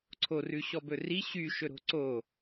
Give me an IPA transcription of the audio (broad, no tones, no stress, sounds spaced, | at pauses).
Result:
ǀʰ o r ʉ ɕ ɔ b ɵ r i ɕ y ʃ ɵ ɾ o̤ ǀ o